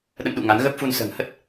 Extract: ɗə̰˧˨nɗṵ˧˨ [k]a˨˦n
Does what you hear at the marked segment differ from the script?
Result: yes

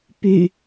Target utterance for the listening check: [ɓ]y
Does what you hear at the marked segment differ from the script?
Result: yes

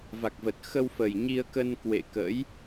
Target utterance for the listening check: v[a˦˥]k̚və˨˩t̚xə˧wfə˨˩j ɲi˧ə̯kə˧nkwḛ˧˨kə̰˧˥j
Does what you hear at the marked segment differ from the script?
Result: yes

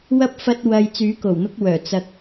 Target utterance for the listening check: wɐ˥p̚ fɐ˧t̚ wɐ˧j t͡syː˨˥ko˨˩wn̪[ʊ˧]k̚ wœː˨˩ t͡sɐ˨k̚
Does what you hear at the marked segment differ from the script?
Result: no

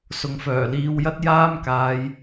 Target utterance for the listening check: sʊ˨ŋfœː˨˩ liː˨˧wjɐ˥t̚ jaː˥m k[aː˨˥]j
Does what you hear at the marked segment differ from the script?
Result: yes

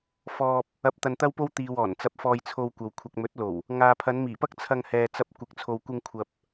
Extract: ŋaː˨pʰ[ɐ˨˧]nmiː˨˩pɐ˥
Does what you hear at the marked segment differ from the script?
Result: no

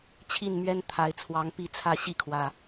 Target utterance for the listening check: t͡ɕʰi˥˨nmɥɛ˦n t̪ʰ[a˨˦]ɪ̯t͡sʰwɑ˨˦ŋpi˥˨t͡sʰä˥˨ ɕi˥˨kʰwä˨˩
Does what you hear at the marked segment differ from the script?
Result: no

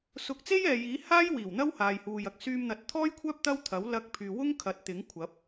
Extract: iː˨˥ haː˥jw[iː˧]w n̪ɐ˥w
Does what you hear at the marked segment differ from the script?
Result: yes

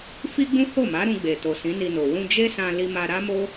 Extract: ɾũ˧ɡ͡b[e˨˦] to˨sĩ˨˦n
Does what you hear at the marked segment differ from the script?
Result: yes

